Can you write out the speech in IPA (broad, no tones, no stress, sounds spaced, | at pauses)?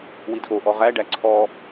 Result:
w i d ʔ o ʔ ɔ ʁ æ ɖ æ ǀʰ ɔ